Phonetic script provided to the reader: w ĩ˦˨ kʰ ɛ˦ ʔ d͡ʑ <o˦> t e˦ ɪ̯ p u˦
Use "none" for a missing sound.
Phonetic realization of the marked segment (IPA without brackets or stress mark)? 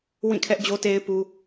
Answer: o˦